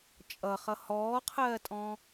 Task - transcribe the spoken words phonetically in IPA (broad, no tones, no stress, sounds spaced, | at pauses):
t͡ʃʼ ʌ χ ʌ h ɔː qʰ ɜː tʼ ɔ̃